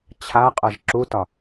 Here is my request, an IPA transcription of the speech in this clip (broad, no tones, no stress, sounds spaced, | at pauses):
t͡ɕʰ a qʼ ʌ ʒ ǁ u t ɒ